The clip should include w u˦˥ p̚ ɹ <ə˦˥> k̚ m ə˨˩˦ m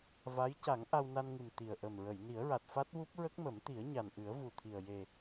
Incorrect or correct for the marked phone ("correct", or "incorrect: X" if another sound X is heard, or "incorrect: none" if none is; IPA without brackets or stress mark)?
correct